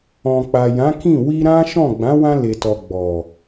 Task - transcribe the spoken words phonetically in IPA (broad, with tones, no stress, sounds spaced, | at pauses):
ɔ̃˨ k͡p a˨ j ã˨˦ k ĩ˦˨ w i˧ ɾ ã˦ ʃ ɔ̃˦˨ ɡ͡b ã˨˦ w ã˧ l e˨ t ɔ˨ ɡ͡b ɔ˨